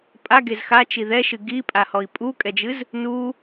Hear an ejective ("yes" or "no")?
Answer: yes